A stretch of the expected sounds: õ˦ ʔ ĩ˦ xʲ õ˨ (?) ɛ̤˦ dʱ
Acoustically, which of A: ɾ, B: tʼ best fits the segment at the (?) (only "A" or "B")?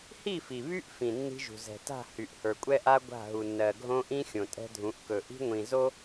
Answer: B